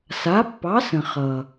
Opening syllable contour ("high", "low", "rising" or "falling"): rising